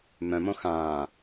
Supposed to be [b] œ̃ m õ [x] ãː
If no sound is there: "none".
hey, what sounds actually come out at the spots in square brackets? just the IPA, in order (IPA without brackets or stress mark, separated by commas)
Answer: m, x